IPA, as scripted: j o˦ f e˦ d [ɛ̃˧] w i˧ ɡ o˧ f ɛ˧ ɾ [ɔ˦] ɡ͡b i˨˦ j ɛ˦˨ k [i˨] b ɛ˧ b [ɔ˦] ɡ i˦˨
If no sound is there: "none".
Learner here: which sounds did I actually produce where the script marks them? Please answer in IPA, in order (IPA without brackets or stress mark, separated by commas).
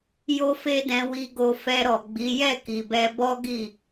ɛ̃˧, ɔ˨, i˨, ɔ˦